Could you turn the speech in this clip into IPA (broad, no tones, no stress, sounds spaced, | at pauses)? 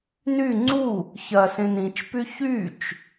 n y ŋ͡ǀ u | ç ɐ s ẽ n ĩ t͡ʃ p y ç y t͡ʃ